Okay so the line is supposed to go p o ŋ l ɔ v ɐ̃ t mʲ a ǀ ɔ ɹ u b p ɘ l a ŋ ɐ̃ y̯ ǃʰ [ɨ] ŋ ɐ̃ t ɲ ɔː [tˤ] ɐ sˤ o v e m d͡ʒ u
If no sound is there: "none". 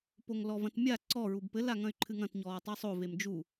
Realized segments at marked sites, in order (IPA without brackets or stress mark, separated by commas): ɨ, tˤ